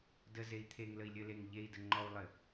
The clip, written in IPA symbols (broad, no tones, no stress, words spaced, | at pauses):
dəzei̯ t̪ʰeŋləi̯lʲɘleŋ ʎei̯də ŋ͡ǃɔu̯lˠɘ